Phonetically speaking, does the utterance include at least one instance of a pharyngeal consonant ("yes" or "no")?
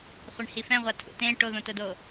no